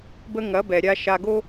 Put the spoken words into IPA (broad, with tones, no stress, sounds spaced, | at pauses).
b ə˧ ŋ ɐ˩˥ b ɛ˩ ɾʲ a˧ ʃ a˧ ɡ o˥